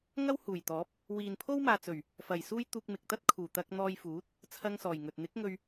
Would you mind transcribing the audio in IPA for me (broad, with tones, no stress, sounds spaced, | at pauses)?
ŋ ɐ˥ w h uː˨˩ j t̪ ɔː˨˥ p̚ | w iː˨ n pʰ o˥ w m aː˨ t͡s ɵ˨˩ ɥ | f ɐ˨˩ j s uː˥ j t̪ uː˧ k̚ m ɪ˨ k̚ t̪ ɐ˥ t̚ kʰ uː˨˩ t̪ ɐ˧ k̚ n̪ ɔː˧ j f uː˨˥ t̚ | t͡sʰ ɐ˥ ŋ s ɔː˨˩ j ŋ ɵ˨ t̚ n̪ ɪ˨˥ k̚ ŋ ɵ˧ ɥ